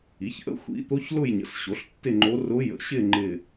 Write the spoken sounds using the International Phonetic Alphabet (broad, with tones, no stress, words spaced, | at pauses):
i˩˥çʔə̰˧˥ xʷḭ˧˥ t̪o˧˥ç lʊ˥˧jɲə̰˩˥s ɕo˩˥ɬtːɪ˥˧ ŋ͡ǃo˧˥ rʊ˧˥jə̰˩˥ɕɪ˥˧ ŋ͡ǃɪ˥˧